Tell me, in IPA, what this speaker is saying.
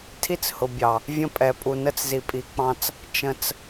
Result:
tʰ i˦ t͡s h ʊ˨ bʲ ɑ˨ | vʲ ə̃˦ pʼ ɛ˨ pʼ u˨ n ə˦˨ t͡s z i˨ pʼ i˨ k͡p ɑ̃˦ t͡s | t͡ʃ ə̃˦ t͡s

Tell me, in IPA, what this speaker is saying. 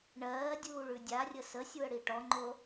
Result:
ɳ ɜː dʲ uː ɭ ʉ dʲ a rʲ ə s ə sʲ u ə̯ ɽ i ʈ ɔ ŋ͡ǃ o

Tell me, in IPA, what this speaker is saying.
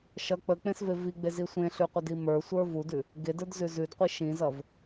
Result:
ʃ ʌ k͡p ə k͡p ẽ s v e v i ɡ͡b e z i sʷ ẽ ɬ ʉ qʷ ə d i m ə˞ sʷ ə˞ v u d ʉ | ɡ e d ə˞ d z ʉ z ʉ d qʷ i ʃ ĩ z ʌ v

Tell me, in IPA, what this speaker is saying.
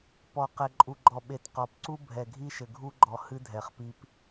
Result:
p ɔ˨ q ɛ˨ ǃʼ u˨ ɡ͡ǃ ɔ˨ ɓ e˨ t q ɔ˨ p ǀ u˦ bʱ ɛ˨ ɡʱ i˦ ʃ ɘ˨ ɡʱ u˦ ɡ͡ǃ ɔ˨ h ɨ˦ dʱ ɛ˨ χ p i˦ p

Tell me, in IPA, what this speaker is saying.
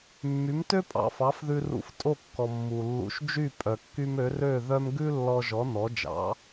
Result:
mː y˩˥ m t ø˥ pʼ ɑ̰˩ f ɑ˩˥ f ð ʉ˧ r ṵ˧ f tʼ o˥˩ kː ɔ˩ mː u˩ lː ṵ˩˥ ʃ d͡ʒ y˥˩ pʼ œ˩ kː y˧ m ø˩˥ r ø˥˩ ð œ˥ m ɡ ʉ˥ lː ɔ˧ ʒ ɔ˩˥ n ɔ˩˥ d͡ʒ ɑ̰˩˥

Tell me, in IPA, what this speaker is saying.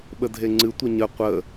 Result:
ɓ ə dʱ e ŋ͡ǀ ɨ tʷ ə ɲ ə qʷ ə

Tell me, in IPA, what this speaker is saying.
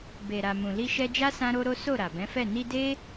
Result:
b e˨ ɾ a˨ m ũ˨ l i˧ ʃ ɛ˧ d͡ʒ a˦ s ã˦ ɾ o˦ ɾ o˦ s o˦˨ ɾ a˨ b ɛ̃˨˦ f ɛ˦˨ n i˧ d e˦

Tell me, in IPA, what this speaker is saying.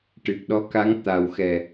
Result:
ʈ ɨ˨˩ k̚ ɗ ɔ˧˥ k a˧˥ ŋ t̪ a˨˩ w x ɛ˨˩

